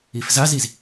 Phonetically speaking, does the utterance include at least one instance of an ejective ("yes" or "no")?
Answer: no